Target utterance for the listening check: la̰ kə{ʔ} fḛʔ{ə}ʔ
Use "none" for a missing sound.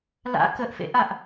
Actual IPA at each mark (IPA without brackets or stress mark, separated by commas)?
ʔ, a